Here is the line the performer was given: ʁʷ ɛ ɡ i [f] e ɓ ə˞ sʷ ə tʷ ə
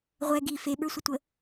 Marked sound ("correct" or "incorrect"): correct